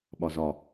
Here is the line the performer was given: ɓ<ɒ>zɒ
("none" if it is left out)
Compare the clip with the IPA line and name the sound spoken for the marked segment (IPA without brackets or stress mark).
ɒ